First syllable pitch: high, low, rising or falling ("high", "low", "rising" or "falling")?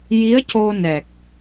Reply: rising